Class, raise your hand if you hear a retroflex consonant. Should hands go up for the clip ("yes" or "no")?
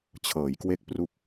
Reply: no